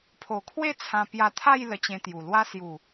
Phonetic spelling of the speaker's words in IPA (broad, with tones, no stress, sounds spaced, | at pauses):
pʰ o˨˩ kʰ w e˥˧ t͡sʰ ã˧ p j a˧ t̪ʰ a˥˧ j l ə˧ t͡ɕ ẽ˧ t̪ j u˨˩ l w a˧ s j u˨˩